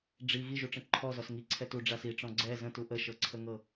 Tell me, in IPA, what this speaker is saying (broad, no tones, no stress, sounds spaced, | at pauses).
ɖ͡ʐ i ɣ i ʒ u ʈ͡ʂ ə̃ ǃʰ ɔ z ɔ s ŋ i ǀʰ ɛ t u ɖ͡ʐ a s i ʈ͡ʂ ɔ̃ ɡ͡ǀ ɛ z ə̃ t u ʔ ə ʃ ɤ ǀʰ ə ŋ ɤ